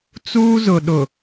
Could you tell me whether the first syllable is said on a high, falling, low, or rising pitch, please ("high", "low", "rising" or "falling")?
high